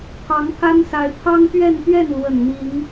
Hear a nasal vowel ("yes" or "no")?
no